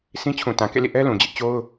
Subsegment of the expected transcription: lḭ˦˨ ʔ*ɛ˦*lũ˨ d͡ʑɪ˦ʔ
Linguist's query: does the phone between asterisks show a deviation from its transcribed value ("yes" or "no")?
no